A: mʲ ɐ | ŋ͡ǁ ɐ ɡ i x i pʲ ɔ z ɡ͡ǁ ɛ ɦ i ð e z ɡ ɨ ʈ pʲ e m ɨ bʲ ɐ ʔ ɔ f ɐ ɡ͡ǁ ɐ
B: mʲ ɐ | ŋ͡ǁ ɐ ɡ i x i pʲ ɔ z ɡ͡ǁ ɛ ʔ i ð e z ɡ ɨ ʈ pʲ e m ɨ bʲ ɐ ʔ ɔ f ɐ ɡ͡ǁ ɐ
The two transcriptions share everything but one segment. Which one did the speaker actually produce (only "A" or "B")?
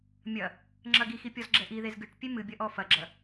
B